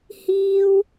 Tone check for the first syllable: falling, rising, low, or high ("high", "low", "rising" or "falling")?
high